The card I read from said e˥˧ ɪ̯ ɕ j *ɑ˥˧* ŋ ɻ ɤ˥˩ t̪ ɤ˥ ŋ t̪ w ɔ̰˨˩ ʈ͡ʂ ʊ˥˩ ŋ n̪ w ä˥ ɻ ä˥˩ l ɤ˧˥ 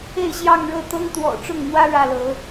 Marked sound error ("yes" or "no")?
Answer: no